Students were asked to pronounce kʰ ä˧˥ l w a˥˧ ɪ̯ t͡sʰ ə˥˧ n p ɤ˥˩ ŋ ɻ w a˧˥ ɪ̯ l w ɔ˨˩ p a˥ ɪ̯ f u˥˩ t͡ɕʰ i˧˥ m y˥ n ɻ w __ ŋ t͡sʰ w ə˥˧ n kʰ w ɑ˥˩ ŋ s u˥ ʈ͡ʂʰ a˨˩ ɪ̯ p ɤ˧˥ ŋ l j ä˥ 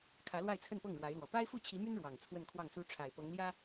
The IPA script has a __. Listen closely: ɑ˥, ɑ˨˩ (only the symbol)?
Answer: ɑ˨˩